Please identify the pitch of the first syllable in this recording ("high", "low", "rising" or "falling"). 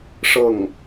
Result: falling